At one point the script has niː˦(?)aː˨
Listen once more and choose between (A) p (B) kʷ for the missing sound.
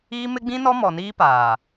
A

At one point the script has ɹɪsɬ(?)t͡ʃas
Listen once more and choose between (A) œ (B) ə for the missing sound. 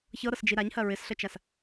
B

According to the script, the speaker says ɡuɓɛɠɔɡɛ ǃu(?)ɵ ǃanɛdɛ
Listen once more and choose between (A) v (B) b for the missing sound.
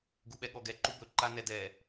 B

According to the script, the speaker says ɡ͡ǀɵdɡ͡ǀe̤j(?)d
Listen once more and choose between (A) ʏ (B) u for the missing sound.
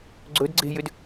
A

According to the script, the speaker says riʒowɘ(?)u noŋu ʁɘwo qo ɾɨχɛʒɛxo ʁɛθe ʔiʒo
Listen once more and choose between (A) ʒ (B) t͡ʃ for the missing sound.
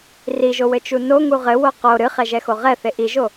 B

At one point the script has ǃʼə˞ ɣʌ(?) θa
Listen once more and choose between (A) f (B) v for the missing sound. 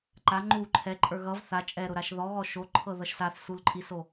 B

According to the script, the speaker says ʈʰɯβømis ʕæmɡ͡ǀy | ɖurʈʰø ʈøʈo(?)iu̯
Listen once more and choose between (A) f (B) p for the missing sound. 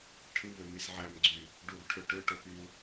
B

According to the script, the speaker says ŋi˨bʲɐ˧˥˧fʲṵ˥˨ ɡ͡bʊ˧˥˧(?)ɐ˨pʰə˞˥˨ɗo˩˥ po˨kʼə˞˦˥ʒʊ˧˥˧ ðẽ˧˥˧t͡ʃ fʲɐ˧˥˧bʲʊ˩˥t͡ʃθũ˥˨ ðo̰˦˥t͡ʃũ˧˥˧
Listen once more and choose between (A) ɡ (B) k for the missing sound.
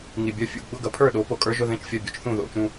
A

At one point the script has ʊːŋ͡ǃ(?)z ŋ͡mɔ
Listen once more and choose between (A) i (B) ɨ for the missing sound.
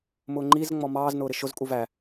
A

